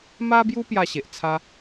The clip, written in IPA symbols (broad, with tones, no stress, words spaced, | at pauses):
ma˦bju˦ pja˥˧ɕe˨ʔ t͡sʰa˦